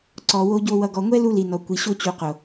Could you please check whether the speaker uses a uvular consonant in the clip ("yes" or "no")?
yes